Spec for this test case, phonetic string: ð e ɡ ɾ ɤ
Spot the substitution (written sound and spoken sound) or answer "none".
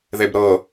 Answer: ɡ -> b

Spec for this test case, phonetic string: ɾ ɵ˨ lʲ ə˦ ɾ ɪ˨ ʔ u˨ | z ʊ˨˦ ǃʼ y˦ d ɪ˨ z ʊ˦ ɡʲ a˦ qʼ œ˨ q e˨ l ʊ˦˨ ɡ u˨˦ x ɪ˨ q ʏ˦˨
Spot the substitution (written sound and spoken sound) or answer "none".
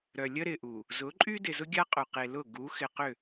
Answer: ɵ˨ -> œ˨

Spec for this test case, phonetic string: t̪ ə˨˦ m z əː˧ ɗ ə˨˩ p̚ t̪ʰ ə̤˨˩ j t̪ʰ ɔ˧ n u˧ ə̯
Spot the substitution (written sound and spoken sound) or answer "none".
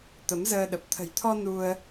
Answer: none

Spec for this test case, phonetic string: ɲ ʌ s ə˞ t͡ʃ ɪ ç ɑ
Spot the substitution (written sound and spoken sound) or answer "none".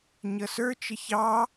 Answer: none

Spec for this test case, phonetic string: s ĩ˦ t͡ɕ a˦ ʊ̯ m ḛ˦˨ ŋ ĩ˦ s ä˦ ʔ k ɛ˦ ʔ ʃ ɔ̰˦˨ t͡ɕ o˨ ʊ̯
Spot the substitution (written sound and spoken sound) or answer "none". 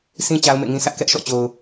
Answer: none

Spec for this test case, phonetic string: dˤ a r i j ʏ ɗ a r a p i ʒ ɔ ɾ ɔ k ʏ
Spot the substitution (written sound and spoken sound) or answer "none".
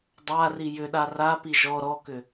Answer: none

